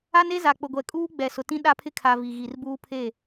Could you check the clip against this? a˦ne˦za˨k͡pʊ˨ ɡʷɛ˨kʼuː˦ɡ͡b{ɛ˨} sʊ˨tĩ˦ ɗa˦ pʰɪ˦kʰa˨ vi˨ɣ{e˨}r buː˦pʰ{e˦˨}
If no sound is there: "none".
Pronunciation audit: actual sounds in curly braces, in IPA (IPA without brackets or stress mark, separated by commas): ɛ˨, i˨, e˦˨